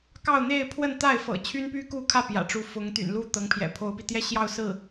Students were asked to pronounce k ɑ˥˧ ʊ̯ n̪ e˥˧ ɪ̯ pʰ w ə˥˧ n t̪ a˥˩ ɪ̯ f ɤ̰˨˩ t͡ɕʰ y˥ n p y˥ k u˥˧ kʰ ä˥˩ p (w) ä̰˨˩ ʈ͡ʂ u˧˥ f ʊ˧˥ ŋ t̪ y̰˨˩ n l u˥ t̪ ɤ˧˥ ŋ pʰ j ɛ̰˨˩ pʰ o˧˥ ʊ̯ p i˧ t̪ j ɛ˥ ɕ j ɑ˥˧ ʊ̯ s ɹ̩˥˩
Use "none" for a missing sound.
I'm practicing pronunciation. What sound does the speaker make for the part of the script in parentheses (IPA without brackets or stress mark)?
j